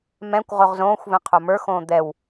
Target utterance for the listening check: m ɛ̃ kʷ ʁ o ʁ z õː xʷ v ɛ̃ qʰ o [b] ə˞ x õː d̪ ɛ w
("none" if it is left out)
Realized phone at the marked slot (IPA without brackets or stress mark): m